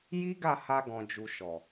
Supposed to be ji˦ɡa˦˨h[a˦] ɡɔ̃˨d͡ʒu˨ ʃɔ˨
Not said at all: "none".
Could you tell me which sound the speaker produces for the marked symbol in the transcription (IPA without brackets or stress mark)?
a˧